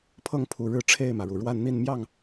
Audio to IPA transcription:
pʰ ɤ˥˨ ŋ pʰ u˨˩ ɻ ɻ̩˥˨ ʈ͡ʂʰ e˥˨ ɪ̯ m ä˩ ɻ u˩ ɻ w a˥˨ n n̪ i˥˨ n m j ɑ˥˨ ŋ

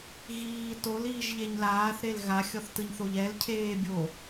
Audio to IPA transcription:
ɣ iː t o l iː ʒ ʎ e ɲ l aː θ ɾ e l ɣ a xʲ ɔ θ t ɯ ɲ θ o ʎ ɛ l cʰ eː bʲ o

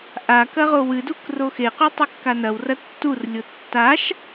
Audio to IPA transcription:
ʔ a k ɐ ʁ o w ɨ d u k r o x e q ʉ tˤ ɨ kː a n ɐ w r ɐ tː u r lʲ o tː a ʃ

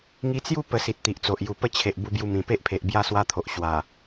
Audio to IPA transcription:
ŋ i˧ t͡s j u˥˧ p ə˧ s i˨ t̚ t̪ i˨ ʔ t͡s o˨ ʔ j u˨˩ p ə˦ t͡ɕʰ e˨ ʔ b u˧ b j u˧ m ĩ˨˩ p e˦ ʔ pʰ e˨ ʔ b j a˥˧ s w a˦ t̪ʰ o˨ ʔ ɕ w a˨˩

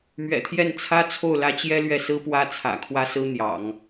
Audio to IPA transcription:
m ɥ ɛ̰˨˩ t̪ʰ j ɛ˥˩ n t͡sʰ ä˥ t͡sʰ o˥˩ ʊ̯ l ä˥ t͡ɕ j ɛ˥ l ɥ ɛ˥˩ s ɹ̩˥ p w ä˥ t͡sʰ ä̰˨˩ kʰ w ä˥ s ɹ̩˥ n̪ j ɑ̰˨˩˦ ŋ

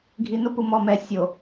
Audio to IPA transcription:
ɡʱ i˨ n ʊ˦ p u˨ m ɔ˨ m ɛ˨ sʲ o˨

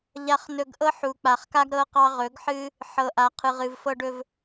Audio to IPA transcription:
ʎ a˧ χ n ɵ˧ ɡ ʔ ɤ˦ ħ u˨ k͡p a˨ χ k a˦ ɡ ɾ ɤ˦ q ɑ˦ ʁ ɵ˨˦ ɡ ħ ɨ˦ | ħ ɤ˨ ʔ a˨ qʰ ɨ˨ ʁ ɨ˨ v f ɤ˧ ɖ ɵ˧ v

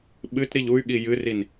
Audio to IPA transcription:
ɓ ɨ t ɾ i ʎ u y̯ ɠ i j ɨ r i n

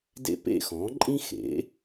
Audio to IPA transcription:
d ḛ˥ p ḛ˥ x ɔ̃˩˥ ǃʼ ĩ˥ x ḛ˩˥

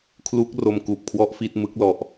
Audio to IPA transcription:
kʰ l u˦˥ k̚ r o˧ m k uː˨˩ p̚ kʰ w ɔ˦˥ ʔ f i˦˥ t̚ m ɯ˦˥ k̚ l ɔ˨˩ ʔ

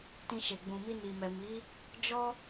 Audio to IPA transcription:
t ĩ˧ ʃ e˨ ɡ͡b ũ˨ m i˧ n i˨ m ɛ˨ m i˨˦ | d͡ʒ ɔ˦

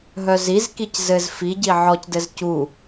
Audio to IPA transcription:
ɦ œ z i z k i c z ɘ z f i ɟ i ʕ ɔ c d ɘ z c u

